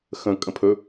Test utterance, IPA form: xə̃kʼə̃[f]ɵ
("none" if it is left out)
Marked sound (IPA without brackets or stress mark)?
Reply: pʰ